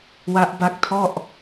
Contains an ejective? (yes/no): no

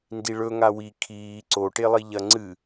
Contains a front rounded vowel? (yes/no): no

